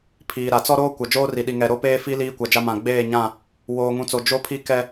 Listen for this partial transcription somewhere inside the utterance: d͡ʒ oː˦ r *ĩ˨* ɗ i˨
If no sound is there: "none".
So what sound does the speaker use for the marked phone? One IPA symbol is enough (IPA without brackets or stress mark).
i˨